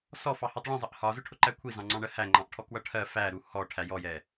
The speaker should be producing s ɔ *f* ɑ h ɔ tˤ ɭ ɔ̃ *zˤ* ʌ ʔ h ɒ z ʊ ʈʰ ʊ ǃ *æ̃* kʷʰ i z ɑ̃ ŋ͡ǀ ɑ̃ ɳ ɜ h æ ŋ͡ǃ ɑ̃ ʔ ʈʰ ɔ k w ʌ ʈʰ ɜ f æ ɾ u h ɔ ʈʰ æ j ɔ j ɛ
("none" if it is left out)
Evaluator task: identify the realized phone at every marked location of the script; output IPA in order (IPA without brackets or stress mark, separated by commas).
f, zˤ, æ